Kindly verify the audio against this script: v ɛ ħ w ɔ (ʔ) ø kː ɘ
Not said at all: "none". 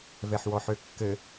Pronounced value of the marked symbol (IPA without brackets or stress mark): ħ